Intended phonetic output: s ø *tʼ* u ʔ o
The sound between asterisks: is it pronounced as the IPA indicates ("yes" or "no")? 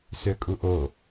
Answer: no